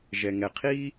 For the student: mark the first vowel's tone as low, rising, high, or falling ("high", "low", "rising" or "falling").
low